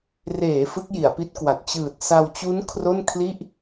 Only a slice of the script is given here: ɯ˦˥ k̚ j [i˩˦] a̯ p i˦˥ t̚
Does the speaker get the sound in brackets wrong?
no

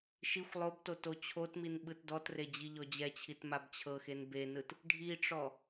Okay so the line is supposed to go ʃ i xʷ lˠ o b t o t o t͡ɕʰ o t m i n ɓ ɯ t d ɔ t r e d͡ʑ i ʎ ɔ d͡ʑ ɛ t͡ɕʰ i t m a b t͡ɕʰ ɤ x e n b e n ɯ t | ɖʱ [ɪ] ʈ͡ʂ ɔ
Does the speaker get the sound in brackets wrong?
yes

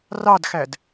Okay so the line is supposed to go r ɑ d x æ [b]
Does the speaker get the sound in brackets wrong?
yes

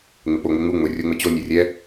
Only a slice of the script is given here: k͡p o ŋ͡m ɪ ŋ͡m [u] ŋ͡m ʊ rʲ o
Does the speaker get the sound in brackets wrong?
no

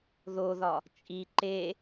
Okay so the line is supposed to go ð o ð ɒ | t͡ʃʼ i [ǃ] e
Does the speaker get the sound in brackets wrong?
no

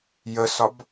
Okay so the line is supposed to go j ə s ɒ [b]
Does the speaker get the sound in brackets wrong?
no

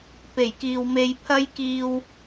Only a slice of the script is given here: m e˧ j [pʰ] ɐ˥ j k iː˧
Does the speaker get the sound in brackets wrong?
no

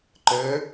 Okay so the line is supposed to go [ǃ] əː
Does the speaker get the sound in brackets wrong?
no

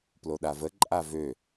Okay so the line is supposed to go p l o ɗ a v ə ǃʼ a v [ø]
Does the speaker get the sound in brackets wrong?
no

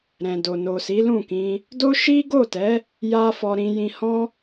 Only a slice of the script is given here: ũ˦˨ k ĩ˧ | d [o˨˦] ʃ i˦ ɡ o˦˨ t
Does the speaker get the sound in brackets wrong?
yes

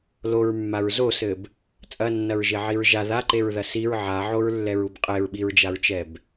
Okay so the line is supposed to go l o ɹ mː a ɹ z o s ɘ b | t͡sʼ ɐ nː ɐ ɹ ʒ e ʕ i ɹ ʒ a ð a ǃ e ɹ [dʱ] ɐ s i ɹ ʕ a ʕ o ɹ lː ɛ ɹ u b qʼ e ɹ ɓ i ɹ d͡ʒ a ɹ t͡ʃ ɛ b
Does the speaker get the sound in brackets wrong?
yes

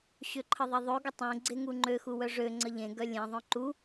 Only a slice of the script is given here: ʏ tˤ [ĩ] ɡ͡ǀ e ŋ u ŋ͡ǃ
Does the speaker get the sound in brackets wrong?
yes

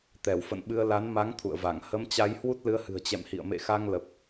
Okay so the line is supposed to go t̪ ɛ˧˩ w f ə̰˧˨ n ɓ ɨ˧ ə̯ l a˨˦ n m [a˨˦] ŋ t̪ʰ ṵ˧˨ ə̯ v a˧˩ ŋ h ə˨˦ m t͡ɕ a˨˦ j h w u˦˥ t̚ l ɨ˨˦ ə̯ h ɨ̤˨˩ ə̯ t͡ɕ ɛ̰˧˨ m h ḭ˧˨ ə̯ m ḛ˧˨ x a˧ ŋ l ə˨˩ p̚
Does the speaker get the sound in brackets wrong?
no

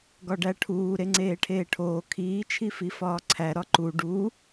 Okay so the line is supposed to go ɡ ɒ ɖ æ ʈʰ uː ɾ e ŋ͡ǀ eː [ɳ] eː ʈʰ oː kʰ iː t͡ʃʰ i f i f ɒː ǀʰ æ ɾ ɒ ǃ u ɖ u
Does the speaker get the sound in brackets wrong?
yes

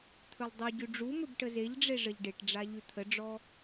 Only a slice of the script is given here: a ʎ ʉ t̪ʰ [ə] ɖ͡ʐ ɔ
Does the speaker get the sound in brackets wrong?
no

